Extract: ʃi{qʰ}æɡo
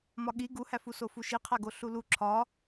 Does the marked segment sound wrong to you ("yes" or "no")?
no